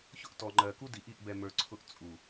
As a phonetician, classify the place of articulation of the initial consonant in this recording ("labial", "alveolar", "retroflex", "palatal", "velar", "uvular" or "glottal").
palatal